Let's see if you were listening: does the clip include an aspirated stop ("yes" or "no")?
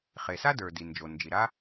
no